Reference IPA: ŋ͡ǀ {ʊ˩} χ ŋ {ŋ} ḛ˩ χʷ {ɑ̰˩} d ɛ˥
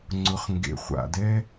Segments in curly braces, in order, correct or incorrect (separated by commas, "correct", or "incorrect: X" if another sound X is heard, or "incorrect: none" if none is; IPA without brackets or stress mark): correct, incorrect: ɡ, incorrect: a̰˩